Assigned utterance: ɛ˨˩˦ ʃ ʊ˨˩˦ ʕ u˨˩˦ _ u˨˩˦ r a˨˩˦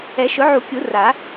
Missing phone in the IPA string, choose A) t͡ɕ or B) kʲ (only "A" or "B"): B